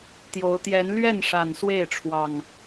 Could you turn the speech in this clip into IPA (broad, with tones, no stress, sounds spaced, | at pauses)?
t̪ j o˨˦ ʊ̯ t̪ j ɛ˨˦ n l ɥ ɛ˥˨ n ʂ a˨˩ n s w e˥˨ ɪ̯ ʈ͡ʂʰ w ɑ˨˩ ŋ